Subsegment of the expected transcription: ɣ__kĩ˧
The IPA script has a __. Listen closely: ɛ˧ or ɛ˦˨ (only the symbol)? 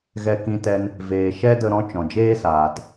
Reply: ɛ˧